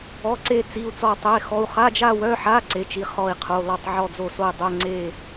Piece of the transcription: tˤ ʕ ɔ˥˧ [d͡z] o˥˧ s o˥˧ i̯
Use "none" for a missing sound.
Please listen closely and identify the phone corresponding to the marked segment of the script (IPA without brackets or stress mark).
d͡z